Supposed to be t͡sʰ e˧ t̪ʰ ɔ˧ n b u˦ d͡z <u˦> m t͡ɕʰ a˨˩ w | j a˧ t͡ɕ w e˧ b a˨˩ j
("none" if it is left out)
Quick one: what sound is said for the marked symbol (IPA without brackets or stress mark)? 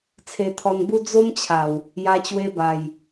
o˦